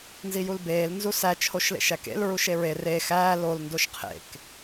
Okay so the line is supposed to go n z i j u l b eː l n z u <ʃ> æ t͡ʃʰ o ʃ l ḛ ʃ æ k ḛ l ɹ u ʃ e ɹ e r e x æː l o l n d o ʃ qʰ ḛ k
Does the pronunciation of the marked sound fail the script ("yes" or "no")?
yes